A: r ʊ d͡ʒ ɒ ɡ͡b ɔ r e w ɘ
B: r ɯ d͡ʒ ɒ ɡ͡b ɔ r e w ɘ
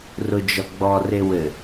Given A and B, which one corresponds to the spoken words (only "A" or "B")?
A